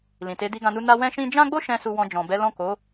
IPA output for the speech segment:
l ĩ˨ t e˨˦ d i˧ ɡ ã˧ n u˧ n a˧ w ɛ̃˦ ʃ ĩ˦ d͡ʒ ã˦ ɡ͡b o˦ ʃ ɛ̃˦ s u˧ w ɔ̃˧ d͡ʒ ɔ̃˨ b ɛ˨˦ l ɔ̃˦˨ k o˨˦

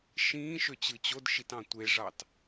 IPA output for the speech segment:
ʃ ĩː ʃ ø t͡ɕ ɯ t͡ɕ o d ʃ i t ɑ̃ tʷ e ʐ ɑ t

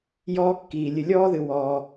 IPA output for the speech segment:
j ɔː˦ kː iː˨ lʲ ɨ˨ lʲ ɔː˥ ð ɨ˨ w ɔː˨

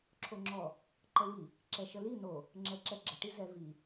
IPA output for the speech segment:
ǁʰ o ŋ͡ǁ ɔ | ǃ ə w i | ǁ ɛ ʃ ə l i n̪ o | ŋ͡ǁ ɛ ǁ ɛ ɡ͡ǁ ə ʈ i z ɛ v i

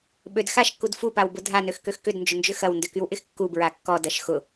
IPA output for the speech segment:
ɓ ø d x a ʃ kː u d f u p a w b ʊ dʱ a n ø x k ø x k ʏ d n d͡ʒ ʊ n d͡ʒ ʏ x ɐ w n d ʏ k y w ʔ ɪ x kː u b ɹ a kː ɔ d ɐ ʃ x ʊ

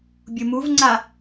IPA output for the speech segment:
bʲ u m u v ŋ͡ǀ a

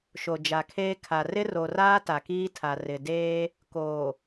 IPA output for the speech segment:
ʃ o˨ d͡ʒ a˨ kʰ eː˦ kʰ a˨ r ɪ˦ r o˨ r aː˦ t a˨ k iː˦ tʰ a˨ r ɪ˨ d eː˦ | k oː˨

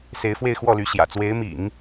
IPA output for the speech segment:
s e˧˥ ɪ̯ f w e˥˧ ɪ̯ x w ɔ˥˩ l y˧˥ ɕ j ä̰˨˩ t͡s w e˧˥ ɪ̯ m ḭ˨˩˦ ŋ

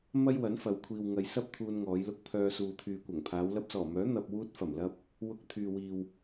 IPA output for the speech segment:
m ɐ˥ j w ɐ˨˥ n f ɐ˨˧ w kʷʰ iː˨ w ŋ ɐ˧ j s ɐ˥ p̚ t̪ʰ uː˧ n ŋ ɔː˨˧ j l ʊ˧ k̚ pʰ œː˧ s uː˨ t̪ʰ yː˨ kʷ ɐ˨˩ ŋ pʰ aː˨˧ w l ɐ˧ p̚ s ɔː˨˩ m œː˨˥ n̪ ɐ˧ p̚ w uː˧ t̚ f ɐ˨˩ m l ɐ˧ p̚ | w ʊ˧ k̚ t̪ʰ yː˨ w iː˨ w

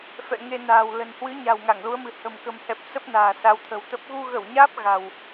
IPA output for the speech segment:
f ɛ̰˧˨ ŋ e˧ n a̤ː˨˩ w l ə̤˨˩ n h w ɨ˨˦ ɲ a̤˨˩ w ŋ a˧˩ ŋ l u˨˦ ə̯ m ɨ̤˨˩ h ə̤˨˩ m k ə̤˨˩ m h ɛ˨˩ p̚ s ə˦˥ p̚ n a̤ː˨˩ s a˨˦ w t̪ʰ ə̤˨˩ w t̪ ə˦˥ p̚ ɣ u˧ ɣ ə˧˩ w ɲ aː˦˥ p̚ ɣ a̤˨˩ w

